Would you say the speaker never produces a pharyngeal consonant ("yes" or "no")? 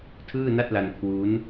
yes